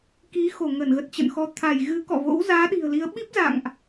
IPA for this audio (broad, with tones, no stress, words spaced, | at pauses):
ki˨˦xo˧˩ ŋə˧˩nɣə˨˩t̚t͡ɕə̰˧˨nxɔ˨˦ t̪ʰa˧˩j ɣɨ˨˦kɔ̰˧˨vo̰˧˥w zaː˨˦ɗi̤˨˩ə̯li˨˦ə̯ ɓi˦˥p̚za̰˧˨ŋʔ